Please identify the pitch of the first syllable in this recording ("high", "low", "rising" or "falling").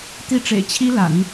falling